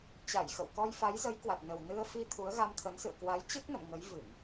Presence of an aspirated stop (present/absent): present